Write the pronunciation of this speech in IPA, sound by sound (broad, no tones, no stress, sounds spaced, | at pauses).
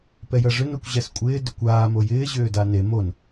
p ɛ j ɐ ʐ ʏ n o kʷ ʑ ɛ s kʷʼ ɪː d ʏ kʷ aː m o j ɪː ʑ ʏː d a n e m o n